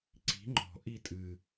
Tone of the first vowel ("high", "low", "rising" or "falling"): rising